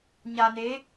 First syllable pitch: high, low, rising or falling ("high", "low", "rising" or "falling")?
low